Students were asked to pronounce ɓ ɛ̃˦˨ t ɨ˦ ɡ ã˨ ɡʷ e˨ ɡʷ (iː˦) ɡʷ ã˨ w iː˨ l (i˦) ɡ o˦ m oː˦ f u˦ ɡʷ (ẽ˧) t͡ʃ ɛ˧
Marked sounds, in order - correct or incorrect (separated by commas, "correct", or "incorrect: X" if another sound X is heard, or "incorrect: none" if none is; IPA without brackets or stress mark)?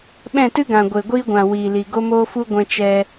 correct, incorrect: i˨, incorrect: ɛ̃˧